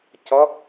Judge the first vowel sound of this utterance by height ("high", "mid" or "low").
mid